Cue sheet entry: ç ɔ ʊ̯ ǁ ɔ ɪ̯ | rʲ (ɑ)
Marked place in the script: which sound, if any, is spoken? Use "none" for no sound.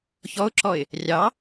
ɑ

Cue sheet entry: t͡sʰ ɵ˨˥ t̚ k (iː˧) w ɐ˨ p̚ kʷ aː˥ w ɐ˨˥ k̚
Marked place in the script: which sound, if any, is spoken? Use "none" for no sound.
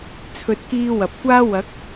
iː˧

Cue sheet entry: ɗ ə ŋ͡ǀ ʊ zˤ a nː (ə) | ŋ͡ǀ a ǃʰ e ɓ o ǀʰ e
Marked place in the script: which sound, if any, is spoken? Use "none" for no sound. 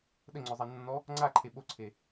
ɔ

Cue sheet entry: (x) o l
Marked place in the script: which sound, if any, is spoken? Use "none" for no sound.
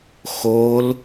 x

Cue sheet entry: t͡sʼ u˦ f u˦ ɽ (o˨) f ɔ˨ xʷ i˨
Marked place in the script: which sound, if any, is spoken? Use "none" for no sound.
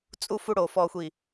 o˨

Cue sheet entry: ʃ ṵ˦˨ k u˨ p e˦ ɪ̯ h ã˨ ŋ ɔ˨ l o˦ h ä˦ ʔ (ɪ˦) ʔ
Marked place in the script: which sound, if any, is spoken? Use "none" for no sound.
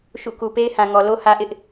ɪ˦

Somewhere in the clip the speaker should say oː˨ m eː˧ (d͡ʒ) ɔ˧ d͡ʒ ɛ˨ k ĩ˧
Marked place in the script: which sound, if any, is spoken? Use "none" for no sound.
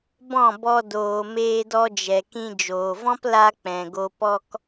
d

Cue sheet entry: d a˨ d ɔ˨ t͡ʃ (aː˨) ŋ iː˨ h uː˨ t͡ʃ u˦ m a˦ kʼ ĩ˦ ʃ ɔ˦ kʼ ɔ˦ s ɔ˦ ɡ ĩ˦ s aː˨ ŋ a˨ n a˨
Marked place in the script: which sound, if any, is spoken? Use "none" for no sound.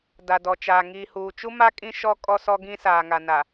aː˨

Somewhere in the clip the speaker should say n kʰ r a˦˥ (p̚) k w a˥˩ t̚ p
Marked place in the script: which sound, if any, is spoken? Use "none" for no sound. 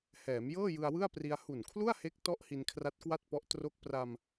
t̚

